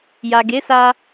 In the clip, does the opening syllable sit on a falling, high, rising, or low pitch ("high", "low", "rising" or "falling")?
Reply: low